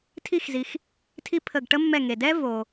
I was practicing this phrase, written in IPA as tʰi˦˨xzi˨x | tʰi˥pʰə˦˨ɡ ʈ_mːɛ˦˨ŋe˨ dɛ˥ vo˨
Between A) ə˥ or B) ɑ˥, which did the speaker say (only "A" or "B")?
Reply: A